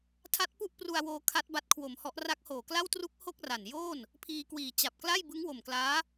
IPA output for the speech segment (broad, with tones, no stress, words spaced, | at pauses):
tʰa˦˥t̚pu˥˩ʔpru˧a̯ woː˧ kʰa˦˥t̚ba˦˥t̚kʰwo˨˩mhɔ˦˥ʔ ra˦˥k̚hoː˨˩kla˥˩w tru˦˥k̚ ho˥˩k̚ra˨˩n joː˥˩n | pʰiː˧kwiː˨˩ t͡ɕa˨˩p̚kla˥˩j bɯ˦˥ŋwo˨˩mklaː˦˥